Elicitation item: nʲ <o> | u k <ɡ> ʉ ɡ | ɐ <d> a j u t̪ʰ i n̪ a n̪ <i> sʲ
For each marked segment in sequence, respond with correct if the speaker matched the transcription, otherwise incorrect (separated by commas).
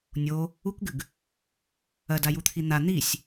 correct, correct, correct, correct